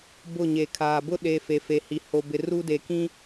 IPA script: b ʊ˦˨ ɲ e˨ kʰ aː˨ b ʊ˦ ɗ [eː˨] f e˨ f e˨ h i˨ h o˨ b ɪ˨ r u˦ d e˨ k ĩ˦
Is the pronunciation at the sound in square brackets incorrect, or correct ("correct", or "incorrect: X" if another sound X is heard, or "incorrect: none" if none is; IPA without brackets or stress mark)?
incorrect: e˨